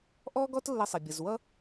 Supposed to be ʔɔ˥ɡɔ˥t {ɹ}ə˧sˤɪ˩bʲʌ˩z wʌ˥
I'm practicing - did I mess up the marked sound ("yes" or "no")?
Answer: yes